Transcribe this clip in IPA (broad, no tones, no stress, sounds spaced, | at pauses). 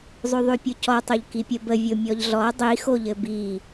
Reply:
zˤ ʉ ðˤ ʉ pʲ o c ɔ tˤ o ʎ k i pʲ ə b ə vʲ o mʲ ɔ ʎ ɮ ɔ dˤ i x o ʎ ɘ b i